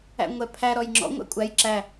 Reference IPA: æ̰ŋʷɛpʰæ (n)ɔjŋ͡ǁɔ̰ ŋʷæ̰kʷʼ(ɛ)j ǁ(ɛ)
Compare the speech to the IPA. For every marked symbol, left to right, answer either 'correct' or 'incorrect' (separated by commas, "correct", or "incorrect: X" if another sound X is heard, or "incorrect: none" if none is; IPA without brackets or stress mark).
incorrect: ɾ, incorrect: æ, incorrect: æ